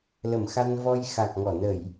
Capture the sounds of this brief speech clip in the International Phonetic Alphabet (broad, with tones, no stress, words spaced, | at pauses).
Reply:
lə˧˩mxa˧nvɔ˧j xa˨˩k̚ŋɔ˧˩ nə˧˩˨j